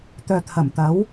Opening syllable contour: low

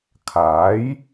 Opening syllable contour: rising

